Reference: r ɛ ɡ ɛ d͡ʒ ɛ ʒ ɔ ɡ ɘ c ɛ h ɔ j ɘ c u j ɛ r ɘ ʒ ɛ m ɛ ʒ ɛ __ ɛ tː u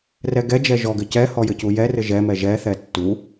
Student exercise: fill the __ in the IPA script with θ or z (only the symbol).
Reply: θ